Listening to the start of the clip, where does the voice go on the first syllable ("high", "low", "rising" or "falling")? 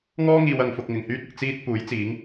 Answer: high